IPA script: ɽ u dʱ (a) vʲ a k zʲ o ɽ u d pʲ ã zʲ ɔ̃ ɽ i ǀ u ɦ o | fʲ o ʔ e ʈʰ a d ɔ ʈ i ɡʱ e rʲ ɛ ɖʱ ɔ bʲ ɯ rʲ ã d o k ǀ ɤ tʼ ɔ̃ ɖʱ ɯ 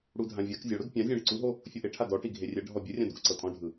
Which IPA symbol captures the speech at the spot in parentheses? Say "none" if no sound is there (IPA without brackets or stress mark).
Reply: ã